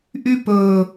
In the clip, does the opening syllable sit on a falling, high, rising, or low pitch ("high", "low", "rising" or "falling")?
high